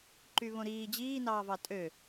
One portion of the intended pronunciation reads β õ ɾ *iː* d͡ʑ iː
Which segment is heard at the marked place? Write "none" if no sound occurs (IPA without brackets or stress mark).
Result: iː